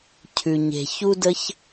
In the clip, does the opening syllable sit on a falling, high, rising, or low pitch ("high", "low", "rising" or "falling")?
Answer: low